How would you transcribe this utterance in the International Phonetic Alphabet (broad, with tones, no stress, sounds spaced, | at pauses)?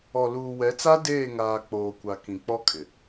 ɔ˨ l uː˨ w ɛ˨˦ t͡s a˦ d eː˦˨ ŋ aː˨ k͡p oː˨ kʷ a˨ k ĩ˨ k͡p ɔ˦ kʼ ɪ˨